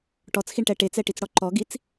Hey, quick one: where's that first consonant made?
retroflex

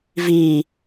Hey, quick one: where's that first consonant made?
lips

